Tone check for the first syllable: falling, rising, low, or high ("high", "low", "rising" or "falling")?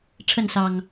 falling